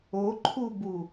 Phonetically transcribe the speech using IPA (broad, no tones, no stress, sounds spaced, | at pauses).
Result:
o ǃʰ u b u